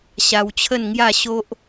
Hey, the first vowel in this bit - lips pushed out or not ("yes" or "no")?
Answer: no